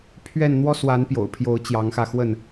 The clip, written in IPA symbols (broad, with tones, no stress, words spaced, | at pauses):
pʰɥɛ˥˨n n̪wɔ˦swa˨˦npjo̰˨˩ʊ̯pʰjo˨˦ʊ̯ t͡ɕjɑ˨˦ŋxä˧xwə˥˨n